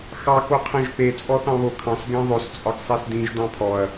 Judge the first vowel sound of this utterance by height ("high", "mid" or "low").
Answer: low